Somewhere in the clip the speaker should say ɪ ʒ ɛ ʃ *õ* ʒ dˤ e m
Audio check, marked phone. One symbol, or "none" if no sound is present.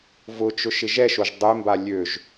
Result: o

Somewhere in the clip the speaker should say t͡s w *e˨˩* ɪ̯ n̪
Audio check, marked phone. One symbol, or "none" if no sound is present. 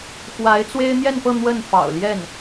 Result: e˥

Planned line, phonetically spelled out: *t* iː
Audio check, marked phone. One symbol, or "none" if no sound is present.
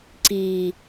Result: ǀ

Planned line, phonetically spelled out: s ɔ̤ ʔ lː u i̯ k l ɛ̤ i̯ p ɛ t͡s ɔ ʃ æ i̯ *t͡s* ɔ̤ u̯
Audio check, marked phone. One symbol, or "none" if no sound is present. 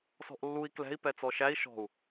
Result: ʃ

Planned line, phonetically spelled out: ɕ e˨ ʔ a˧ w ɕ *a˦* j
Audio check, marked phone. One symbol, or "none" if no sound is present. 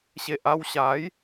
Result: a˨˦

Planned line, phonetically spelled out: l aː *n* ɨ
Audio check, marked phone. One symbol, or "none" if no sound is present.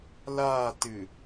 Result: t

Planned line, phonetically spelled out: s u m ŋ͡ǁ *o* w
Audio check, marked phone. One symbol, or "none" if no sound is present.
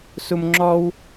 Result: ɔ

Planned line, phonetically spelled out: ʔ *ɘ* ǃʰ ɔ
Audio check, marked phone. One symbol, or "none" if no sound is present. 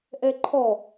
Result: ɛ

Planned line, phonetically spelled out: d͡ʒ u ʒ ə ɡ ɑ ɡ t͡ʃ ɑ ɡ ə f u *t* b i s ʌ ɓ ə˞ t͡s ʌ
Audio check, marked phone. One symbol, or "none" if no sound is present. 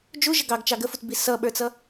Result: t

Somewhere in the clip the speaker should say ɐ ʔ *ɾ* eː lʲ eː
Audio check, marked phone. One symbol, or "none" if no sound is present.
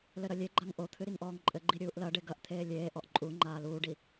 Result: t̪ʰ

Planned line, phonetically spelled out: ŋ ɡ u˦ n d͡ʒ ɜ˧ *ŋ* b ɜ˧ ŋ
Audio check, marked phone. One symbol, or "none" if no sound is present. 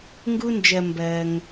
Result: m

